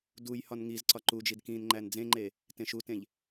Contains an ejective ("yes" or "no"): no